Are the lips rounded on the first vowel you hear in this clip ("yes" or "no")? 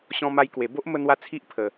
yes